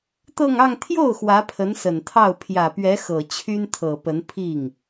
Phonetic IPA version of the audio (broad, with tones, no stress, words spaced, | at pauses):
t̪ɤ˥˧ŋɑ˥˧ŋ t̪ʰjo˥˩ʊ̯ xwä˧˥pʰə˧˥nsə˨˩nt̪ʰɑ˥˩ʊ̯ pʰjä˨˩pɥɛ˧˥xɤ˨˩ t͡ɕʰy˥nt̪ʰɤ˨˩pə˧˥n pʰi˥˩ŋ